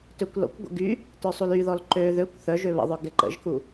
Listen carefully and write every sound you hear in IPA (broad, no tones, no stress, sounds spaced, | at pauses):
t ø kʷ l ɔ̰ kʷ ɡʷ ə̰ ɡ y | t œ sˤ u l y ð ɔ l ǃ ø ð ø kʷ θ œ ʒ ø β ə̰ ðˤ œ ɡ ɛ ǃ ə̰ ʒ k u